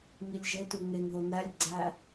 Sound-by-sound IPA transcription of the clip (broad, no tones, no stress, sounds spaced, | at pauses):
ŋ i lʲ ʒ e t u ŋ e ŋ ð o n æ lʲ ɡ͡ǀ æ